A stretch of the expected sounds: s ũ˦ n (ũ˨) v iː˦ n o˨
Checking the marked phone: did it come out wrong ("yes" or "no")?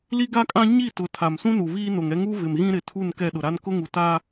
yes